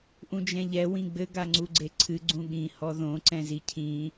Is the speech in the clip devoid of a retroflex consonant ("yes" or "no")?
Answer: yes